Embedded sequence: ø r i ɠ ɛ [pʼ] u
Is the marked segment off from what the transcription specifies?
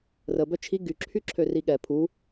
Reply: yes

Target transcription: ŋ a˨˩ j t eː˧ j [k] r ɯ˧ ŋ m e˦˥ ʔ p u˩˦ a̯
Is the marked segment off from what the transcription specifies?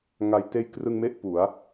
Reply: no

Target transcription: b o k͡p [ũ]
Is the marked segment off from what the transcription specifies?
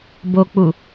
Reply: yes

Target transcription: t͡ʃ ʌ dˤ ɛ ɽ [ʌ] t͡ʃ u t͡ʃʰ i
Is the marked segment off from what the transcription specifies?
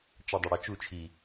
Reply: yes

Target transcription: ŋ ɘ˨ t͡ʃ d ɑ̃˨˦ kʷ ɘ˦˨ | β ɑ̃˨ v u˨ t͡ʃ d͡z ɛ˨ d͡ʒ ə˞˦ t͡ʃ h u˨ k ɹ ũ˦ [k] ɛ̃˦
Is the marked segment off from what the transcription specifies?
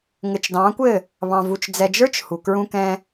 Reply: no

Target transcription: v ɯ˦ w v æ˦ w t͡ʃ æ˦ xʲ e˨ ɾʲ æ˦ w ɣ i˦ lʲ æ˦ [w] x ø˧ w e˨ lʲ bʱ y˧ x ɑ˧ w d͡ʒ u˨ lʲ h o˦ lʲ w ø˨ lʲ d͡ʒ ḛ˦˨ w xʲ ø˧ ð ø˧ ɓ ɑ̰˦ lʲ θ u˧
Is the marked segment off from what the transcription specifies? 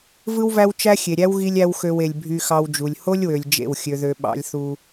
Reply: no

